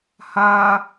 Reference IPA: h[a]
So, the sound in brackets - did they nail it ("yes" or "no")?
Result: yes